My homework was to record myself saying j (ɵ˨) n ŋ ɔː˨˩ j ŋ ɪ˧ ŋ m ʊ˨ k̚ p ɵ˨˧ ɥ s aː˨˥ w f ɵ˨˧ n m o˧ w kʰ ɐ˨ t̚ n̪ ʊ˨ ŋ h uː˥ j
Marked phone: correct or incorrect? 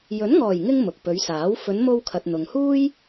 incorrect